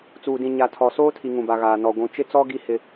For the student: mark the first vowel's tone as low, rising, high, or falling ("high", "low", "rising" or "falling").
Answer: low